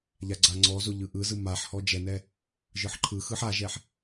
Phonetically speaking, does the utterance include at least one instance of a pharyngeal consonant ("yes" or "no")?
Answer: yes